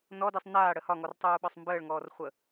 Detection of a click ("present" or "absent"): absent